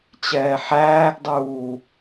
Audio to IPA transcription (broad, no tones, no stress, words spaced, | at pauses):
t͡ɕɛːħæːɡdˤuː